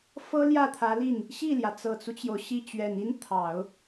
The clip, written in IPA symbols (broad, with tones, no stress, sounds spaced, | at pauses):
f ɤ˥ l j ä˥˩ t̪ʰ ä˧˥ l i˥˩ n | ɕ i˥˩ l j ä˩ t͡s ɤ˨˩ t͡s u˦ t͡ɕ j o˩ ʊ̯ ɕ i˥˩ t͡ɕ ɥ ɛ˨˩ n i˥ n t̪ʰ ɑ˨˩˦ ʊ̯